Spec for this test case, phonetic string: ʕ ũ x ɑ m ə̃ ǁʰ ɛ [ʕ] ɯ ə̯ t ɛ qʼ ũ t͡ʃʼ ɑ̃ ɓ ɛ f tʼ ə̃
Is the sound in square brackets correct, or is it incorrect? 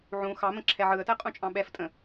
correct